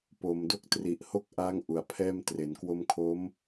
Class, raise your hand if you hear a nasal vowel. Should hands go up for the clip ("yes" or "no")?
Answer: no